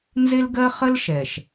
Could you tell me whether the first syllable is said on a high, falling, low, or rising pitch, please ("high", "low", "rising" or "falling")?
high